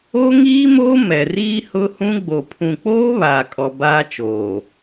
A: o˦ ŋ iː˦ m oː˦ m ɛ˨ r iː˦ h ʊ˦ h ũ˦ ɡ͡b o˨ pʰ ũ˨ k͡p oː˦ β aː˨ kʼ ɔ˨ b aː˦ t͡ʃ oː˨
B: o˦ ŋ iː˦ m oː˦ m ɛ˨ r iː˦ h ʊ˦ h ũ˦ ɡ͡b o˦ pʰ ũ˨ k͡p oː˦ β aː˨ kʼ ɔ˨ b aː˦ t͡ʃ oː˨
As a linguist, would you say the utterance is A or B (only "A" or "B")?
A